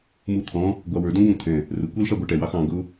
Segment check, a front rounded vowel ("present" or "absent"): absent